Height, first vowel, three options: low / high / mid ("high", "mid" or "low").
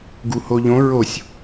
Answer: high